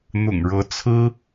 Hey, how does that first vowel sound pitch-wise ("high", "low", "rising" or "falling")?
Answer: low